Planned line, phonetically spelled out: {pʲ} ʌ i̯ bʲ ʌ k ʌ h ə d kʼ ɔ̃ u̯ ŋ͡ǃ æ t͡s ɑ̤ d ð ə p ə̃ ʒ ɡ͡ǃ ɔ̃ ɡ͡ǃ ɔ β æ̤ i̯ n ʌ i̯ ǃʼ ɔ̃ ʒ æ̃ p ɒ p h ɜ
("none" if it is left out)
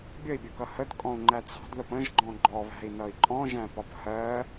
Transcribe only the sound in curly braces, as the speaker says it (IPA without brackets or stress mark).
bʲ